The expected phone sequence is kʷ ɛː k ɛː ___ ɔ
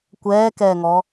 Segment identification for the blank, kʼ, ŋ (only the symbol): ŋ